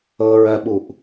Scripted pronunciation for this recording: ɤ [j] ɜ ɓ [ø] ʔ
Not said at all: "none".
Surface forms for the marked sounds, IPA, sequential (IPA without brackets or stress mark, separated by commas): ɹ, u